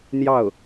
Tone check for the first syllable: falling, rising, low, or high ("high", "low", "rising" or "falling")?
falling